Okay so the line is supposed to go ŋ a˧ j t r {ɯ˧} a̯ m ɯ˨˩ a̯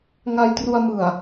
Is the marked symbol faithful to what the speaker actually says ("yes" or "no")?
no